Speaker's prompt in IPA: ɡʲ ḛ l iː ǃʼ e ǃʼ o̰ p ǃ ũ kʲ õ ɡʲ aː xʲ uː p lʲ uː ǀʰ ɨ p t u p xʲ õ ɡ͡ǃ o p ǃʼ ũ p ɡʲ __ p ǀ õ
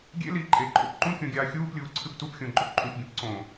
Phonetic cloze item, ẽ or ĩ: ẽ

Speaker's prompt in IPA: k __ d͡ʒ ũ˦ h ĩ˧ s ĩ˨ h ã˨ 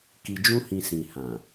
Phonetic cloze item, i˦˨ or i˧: i˧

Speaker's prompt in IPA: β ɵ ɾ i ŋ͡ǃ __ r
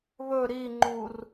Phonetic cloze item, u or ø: u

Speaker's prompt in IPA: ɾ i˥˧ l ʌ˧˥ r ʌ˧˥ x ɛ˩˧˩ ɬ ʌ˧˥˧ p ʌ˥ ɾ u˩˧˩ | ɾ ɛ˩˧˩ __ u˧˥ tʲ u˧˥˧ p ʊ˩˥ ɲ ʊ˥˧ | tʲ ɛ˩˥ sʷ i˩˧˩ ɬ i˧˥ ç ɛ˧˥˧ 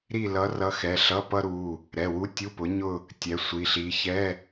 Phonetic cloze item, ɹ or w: w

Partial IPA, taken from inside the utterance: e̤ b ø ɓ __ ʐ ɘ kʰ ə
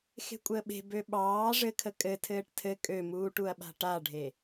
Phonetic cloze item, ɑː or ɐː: ɑː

